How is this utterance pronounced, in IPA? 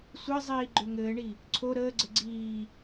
sʷ ɘ zˤ iː ɡ͡ǃ ø ŋ ɘː ɳ i | ǀʰ o ɾ əː ɡ͡ǀ ɘ ɡ͡ǀ iː

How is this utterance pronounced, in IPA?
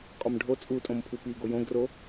kʼ ɒ m ɖʱ o t͡sʼ u tʼ õ m pʰ u p i ɡ o j õ ɡ r o

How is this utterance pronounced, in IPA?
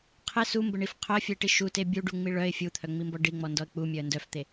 qʰ ɪ s u m b ə ɳ i f qʰ œ ə̯ fʲ ə ɪ̯ ʈ i ʃ u t e bʲ u ɖ u ŋ͡m i ɭ œ ɪ̯ fʲ u t̪ʰ œ ŋ͡m i m b ɔ ɖ i ŋ͡m ɔ n d ɔ ə̯ k͡p u mʲ œ ə̯ n d œ f t̪ e

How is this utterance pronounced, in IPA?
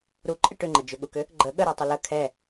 ɾ u ǃʼ ɪ ʈ ʏ ŋ͡ǃ ə d͡ʒ ʏ ɠ u k ʏ | ɡ͡ǃ ə ɠ ə ɾ u tˤ ʏ l ə kʰ ɛ

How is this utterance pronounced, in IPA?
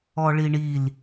ɔ ɭ i ɳ i l

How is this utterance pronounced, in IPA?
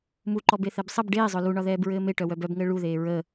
m u ǃ ɔ b e θ ɛ b sˤ ə b ɖ eː zˤ œ l u ɳ ɒ ð ɛː b ɹ ɘː m e ʈ œ w œ b œ b ŋ ɘː ɭ u ð eː ɹ ə

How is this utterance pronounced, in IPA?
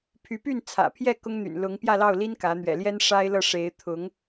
pʰ y˧˥ p y˥˩ n t͡sʰ ä̰˨˩ pʰ j ɛ˥˩ k ʊ˥ ŋ n̪ y̰˨˩ n l ʊ˧˥ ŋ p j ä˥˧ l ɑ˥˩ ʊ̯ l i˥ n k ä˧˥ n̪ ɥ ɛ̰˨˩ l j ɛ˥ n ʂ a˥ ɪ̯ l ɤ˥˩ ʂ e˧˥ ɪ̯ t̪ʰ ʊ˧˥ ŋ

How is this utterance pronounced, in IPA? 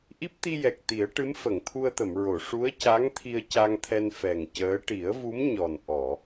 ʔ i˦˥ p̚ t̪ i˧ j ɛ˨˩ k̚ t̪ i˨˩˦ ə̯ ʈ ɨ˧˥ m f ə˨˩˨ ŋ t̪ʰ u˧ ə̯ t̪ ə˨˩˨ m ɹ o˨˩˨ ʂ u˧˥ ə̯ c a˧˥ ŋ t̪ʰ i˧ ə̯ c a˧ ŋ t̪ʰ ɛ˧ n f ɛ˨˩ ŋ c əː˧˥ ʈ i˨˩˦ ə̯ v u˧˥ m ɲ ɔ˨˩ n ʔ ɔ˨˩˨

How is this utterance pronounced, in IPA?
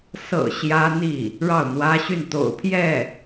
s ɤ̰˨˩ ɕ j ä˥ n̪ i˥˩ | ɻ ɑ˥˩ ʊ̯ n̪ w ä˥ ɕ y˥˩ n t̪ o̰˨˩ ʊ̯ pʰ j ɛ˥˩

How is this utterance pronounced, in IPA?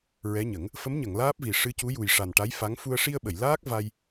ɹ ɛ˧˥ ɲ ə˨˩˦ ŋ | f ə˧˥ m ɲ ə˨˩˨ ŋ l aː˦˥ p̚ v i˨˩ ʂ ɨ˧˥ c u˧˥ j u˨˩ j ʂ a˨˩ n ʈ a˧˥ j f a˧˥ ŋ f u˧ ə̯ ʂ i˧ ə̯ ɓ ə˨˩˨ j l aː˦˥ k̚ v a˧ j

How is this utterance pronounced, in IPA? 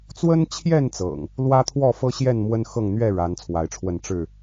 t͡s w ə˦ n t͡ɕʰ j ɛ˥˨ n t͡s ɤ̰˨˩ ŋ | l w ä˦ t̪ʰ w ɔ˥˨ f ɤ˦ ɕ j ɛ˥˨ n m w ə˦ n x ɤ˥˨ ŋ n̪ ɥ ɛ˥˨ ɻ a˨˦ n t͡sʰ w a˨˦ ɪ̯ ʈ͡ʂʰ w ə˥˨ n ʈ͡ʂ ɻ̩˥˨

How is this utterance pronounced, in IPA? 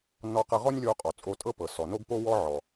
n ɔ˧ q ɤ˧ ʁ ɔ˥ nʲ lʲ o˧ qʼ ɔ˩ t͡sʼ o˧ tʼ ɤ˥ p ɤ˩ s ɔ˩ n o˥ ɡ p o˥ w ɔ˥ ʕ ɔ˩

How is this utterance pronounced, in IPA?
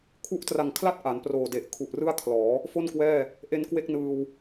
kʰ u˦˥ ʔ t r a˨˩ ŋ kʰ l a˥˩ t̚ ʔ a˩˦ n p r oː˨˩ d e˨˩ ʔ kʰ u˨˩ ʔ r ɯ˥˩ a̯ kʰ l ɔː˩˦ | f o˥˩ n k w ɛː˥˩ | ʔ e˧ n k w e˥˩ k̚ n ɯː˧ w

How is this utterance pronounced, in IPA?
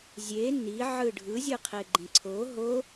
zʲ e n i ʕ ɯ ɖʱ ɯ zʲ ɯ qʰ e ɡ͡ǃ ẽ ǀʰ o ɦ o

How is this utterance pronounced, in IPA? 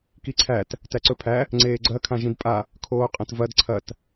k i ǀʰ æ t | t æ ǀ ɵ pʰ æ | ŋ͡ǀ eː ɡ͡ǀ ɐ kʰ ã ʒ ĩ d pʼ a | kʰ oː qʼ ɐ̃ t v ɐ d ǀʰ ɐ t

